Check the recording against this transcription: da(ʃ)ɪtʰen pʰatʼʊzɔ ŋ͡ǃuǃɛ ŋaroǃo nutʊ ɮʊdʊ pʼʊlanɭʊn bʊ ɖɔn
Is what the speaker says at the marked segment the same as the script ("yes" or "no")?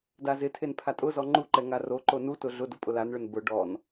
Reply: no